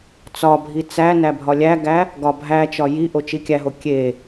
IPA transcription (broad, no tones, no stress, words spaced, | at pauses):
t͡sɒbʱi t͡sæ næbʱɒlʲæɡæ | ɡɒbʱæt͡ʃɒ ji ʔot͡ʃikʲæɦo kʲe